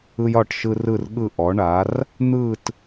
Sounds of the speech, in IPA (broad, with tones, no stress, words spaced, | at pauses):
ɯ˦jɒ˦˨ʈʃɯ˦ rɯ˦˨rɠɯ˦˨ ʔɔ˩˥ɳa˩˥r | n̪ɯ˦˨t